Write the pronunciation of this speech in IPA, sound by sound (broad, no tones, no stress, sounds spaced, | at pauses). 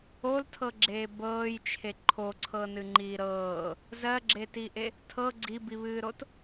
o l tʰ ɤ ɡ͡ǁ eː b ɤː j t͡ʃʰ e ǃʰ o ǀʰ ɤ n ɨ ŋ͡ǃ iː ɾ ɤː | z ɜ ɡ͡ǁ e t i ʔ e | tʰ ɤ ɡ͡ǀ i b i β ɨː ɾ o t